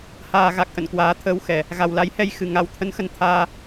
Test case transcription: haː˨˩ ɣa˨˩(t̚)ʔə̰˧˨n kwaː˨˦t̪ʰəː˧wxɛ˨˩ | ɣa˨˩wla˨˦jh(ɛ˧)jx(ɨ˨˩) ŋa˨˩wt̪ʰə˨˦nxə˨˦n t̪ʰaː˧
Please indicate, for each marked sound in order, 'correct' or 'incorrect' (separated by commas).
incorrect, correct, correct